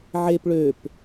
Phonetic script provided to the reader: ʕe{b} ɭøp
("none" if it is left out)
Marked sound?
p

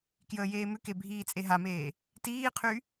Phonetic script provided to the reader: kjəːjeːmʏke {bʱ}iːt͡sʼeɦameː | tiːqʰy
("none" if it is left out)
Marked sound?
bʱ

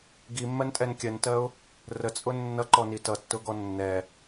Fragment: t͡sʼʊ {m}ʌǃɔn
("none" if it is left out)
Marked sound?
nː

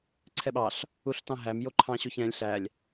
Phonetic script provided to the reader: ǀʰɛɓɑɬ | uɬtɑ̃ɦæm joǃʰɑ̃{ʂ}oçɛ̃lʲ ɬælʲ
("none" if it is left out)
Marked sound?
ɕ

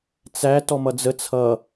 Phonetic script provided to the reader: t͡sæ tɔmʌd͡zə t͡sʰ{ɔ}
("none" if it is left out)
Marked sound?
ʌ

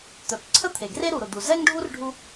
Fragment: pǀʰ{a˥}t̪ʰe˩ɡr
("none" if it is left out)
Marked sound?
ə˥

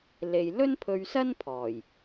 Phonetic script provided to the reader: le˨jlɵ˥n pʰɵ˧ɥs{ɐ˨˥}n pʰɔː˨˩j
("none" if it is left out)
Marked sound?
ɐ˥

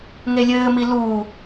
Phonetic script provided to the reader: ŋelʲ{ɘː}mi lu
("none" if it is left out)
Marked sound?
ɘː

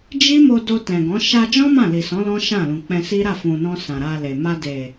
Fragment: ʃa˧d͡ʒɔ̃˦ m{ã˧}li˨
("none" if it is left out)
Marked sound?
ã˦˨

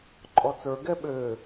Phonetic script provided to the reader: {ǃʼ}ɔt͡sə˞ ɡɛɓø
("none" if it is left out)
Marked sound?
ǃʼ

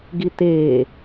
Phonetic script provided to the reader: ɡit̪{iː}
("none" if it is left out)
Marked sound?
eː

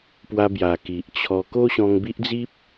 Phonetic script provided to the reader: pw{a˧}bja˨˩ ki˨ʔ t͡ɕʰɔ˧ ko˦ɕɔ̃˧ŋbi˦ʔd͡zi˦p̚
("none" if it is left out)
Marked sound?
a˧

